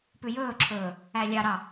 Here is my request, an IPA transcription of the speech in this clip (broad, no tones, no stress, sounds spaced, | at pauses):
p ʉ j ɵː ǁʰ ɵː | æ lʲ ɑ ɾ ɑ